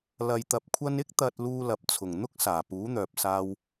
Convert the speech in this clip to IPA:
l ɐ˨ j t̪ ɐ˨ p̚ kʷʰ ɐ˧ n ɪ˥ k̚ t̪ ɐ˧ t̚ l uː˧ l ɐ˨ p̚ t͡sʰ ʊ˨˩ ŋ n̪ ʊ˥ k̚ s aː˨˩ p uː˨˥ n̪ œː˨ p̚ s aː˧ w

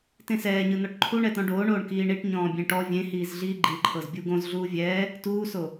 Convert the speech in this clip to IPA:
t ẽ s ɛː ɲ ɯ n ɔ ʈ ǃʰ u ɳ ɛ t̪ ɔ̃ ɖ oː ɳ oː ɳ k iː ɳ i ʈ ɲ ɔ̃ː bʲ ẽ ʈ ɔ vʲ ẽ h iː z ɮ iː ɡ͡ǃ i ǃʰ ɤ z bʲ u ɡ õ z ɮ uː vʲ ɛː | t uː s o

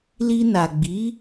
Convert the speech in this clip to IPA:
l i˧ n a˨ ɡ͡b i˨˦

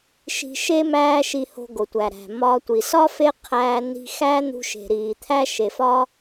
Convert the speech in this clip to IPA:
ʃ i̤˧ ʃ e˥ m æː˥ ʃ i˧ h o̤˧ ɡ o˩ tʷ æ˩ ɾ æ̤˩ m ɒ˧ tʷ i˩ s ɒ˥ f e˥ qʰ æː˧ n i̤˧ x æ˥ n̪ ṳ˧ ʃ e̤˩ ɾ iː˩ t̪ʰ æ˥ ʃ e˩ f ɒ˥

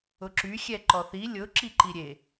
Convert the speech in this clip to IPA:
ʊ ǁ y xʲ ɛ ǃ ɔ θ i lʲ ʊ ǁ i ǃ i ɾʲ e

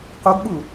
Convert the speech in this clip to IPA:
q o ɡ ɓ u

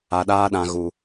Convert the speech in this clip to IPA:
a˧ ɗ aː˦ ɗ ã˧ ɣ u˨

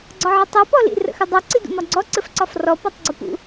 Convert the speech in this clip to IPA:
ɡ͡ǀ ɒ ʕ ɘ tˤ ɛ p ɔ l ḭ r ə̰ x ɘ dˤ ɛ ǀ i d ṵ m ɒ ɡ͡ǀ ɔ ǀ ɘ f ǀ ɒ f r ɔ p ɔ tˤ ɡ͡ǀ ə p ṵ

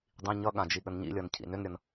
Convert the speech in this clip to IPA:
dˤ ĩ ɲ ʌ ɠ ã d͡ʒ i ɠ ə n ɲ ḭ lʲ ʌ n cʰ ḭ n ʏ n ɾʲ ʌ n

